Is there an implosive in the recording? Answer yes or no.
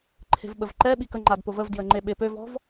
yes